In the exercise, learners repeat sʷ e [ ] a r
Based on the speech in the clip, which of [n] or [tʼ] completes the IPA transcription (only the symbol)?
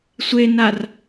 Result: n